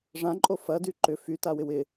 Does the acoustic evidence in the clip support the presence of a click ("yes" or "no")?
yes